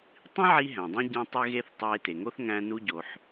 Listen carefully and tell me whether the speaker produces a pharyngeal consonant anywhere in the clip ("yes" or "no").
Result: yes